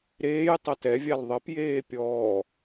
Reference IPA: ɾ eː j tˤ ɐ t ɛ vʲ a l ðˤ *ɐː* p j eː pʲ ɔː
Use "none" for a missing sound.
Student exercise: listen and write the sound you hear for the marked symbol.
ɐ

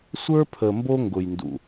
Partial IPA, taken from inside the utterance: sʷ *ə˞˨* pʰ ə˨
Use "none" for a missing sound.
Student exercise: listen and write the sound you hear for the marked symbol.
ə˞˦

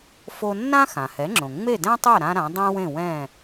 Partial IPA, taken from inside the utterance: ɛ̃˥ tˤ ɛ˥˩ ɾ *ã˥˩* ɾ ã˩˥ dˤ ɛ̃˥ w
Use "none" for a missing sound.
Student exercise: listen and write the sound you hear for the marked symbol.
ã˥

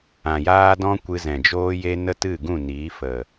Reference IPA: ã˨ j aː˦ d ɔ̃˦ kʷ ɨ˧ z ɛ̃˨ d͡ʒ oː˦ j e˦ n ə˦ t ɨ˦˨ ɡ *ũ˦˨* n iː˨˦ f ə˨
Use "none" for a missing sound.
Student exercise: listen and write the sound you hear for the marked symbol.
ũ˦˨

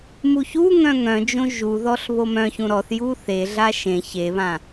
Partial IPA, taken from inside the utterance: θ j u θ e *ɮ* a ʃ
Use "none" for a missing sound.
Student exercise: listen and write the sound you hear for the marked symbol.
ɮ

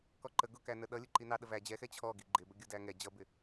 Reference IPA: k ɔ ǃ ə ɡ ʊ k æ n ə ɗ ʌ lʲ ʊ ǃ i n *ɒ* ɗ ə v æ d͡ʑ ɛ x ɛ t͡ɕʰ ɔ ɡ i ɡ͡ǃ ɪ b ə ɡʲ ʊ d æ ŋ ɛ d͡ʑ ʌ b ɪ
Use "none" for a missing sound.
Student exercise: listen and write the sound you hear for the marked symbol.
ɑ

